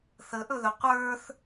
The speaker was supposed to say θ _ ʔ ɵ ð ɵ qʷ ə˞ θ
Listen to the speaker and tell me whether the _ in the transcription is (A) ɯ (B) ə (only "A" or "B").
B